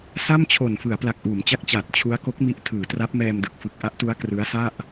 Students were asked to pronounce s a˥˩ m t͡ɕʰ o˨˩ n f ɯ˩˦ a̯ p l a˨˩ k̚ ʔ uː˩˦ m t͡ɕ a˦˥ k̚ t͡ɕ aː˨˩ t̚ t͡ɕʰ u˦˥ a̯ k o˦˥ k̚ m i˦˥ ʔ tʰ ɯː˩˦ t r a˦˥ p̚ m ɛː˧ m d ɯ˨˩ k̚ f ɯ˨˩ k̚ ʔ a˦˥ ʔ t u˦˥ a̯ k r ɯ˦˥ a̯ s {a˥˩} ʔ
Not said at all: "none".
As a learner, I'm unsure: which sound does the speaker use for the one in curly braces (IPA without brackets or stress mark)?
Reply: a˥˩